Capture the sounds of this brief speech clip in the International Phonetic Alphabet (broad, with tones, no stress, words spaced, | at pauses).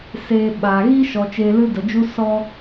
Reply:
seː˧ ɓaː˨ ɣi˦ʃɔ˨ t͡ʃeː˧lɨ˦də˨d͡ʒu˦ sɔ˧